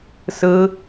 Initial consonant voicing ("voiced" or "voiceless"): voiceless